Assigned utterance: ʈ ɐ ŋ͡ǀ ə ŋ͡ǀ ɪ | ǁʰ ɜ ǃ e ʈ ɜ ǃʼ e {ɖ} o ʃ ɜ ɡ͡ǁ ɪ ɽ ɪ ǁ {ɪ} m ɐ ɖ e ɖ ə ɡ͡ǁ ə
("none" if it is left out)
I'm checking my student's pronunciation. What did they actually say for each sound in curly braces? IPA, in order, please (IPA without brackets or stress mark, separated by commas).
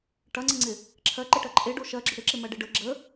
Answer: ɖ, ɪ